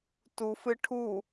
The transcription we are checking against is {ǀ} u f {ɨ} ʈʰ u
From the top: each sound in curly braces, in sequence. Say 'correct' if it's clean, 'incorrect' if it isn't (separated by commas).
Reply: incorrect, correct